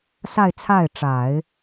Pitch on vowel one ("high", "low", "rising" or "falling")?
falling